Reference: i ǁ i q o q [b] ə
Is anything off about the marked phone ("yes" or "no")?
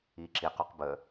no